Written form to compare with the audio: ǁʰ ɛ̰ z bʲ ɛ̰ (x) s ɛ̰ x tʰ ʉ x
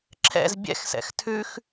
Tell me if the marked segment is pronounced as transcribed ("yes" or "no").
yes